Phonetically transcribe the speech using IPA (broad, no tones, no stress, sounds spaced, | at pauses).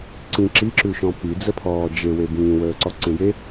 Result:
ǀ ĩ ǁ i ǁ ʉ ʃ ɔ̃ p i d͡z ə pʰ ɔː d͡ʒ e w e b ĩː w əː ǀ ɔ ǀ ẽ j e